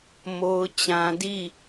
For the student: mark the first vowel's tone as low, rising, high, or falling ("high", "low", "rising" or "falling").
high